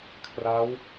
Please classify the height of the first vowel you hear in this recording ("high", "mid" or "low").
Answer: low